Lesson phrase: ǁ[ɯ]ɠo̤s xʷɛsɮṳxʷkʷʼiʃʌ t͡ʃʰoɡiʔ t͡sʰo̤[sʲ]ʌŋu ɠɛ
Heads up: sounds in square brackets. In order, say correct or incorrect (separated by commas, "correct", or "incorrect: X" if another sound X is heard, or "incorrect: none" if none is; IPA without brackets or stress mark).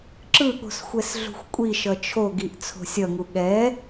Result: correct, correct